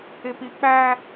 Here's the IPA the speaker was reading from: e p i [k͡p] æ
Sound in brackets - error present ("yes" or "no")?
no